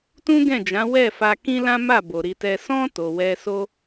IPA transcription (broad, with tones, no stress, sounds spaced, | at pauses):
t ũ˦ ɡ ɛ̃˦˨ d͡ʒ ã˨˦ w ɛ˦˨ f a˧ k ĩ˦ l ã˦ m a˦˨ b o˨ ɾ i˧ t ɛ˧ s ɔ̃˧ t o˨ w ɛ˧ s o˦